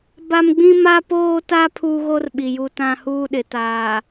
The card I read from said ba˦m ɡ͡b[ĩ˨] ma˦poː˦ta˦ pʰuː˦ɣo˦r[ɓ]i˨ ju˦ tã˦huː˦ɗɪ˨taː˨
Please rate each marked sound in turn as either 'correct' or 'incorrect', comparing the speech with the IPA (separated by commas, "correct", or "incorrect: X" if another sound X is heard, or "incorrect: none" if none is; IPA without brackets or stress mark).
incorrect: ĩ˦, correct